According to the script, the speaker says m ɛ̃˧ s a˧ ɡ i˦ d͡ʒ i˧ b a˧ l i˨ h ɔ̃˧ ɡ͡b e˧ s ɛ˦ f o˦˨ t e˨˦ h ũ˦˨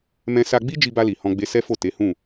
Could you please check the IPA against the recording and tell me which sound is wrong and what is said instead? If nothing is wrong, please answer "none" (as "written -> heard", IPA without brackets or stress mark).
ɡ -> ɡ͡b